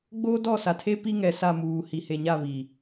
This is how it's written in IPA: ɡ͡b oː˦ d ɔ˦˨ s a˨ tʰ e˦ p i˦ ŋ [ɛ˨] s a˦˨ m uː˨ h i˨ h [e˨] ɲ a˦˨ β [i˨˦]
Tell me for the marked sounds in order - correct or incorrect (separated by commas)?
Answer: correct, correct, incorrect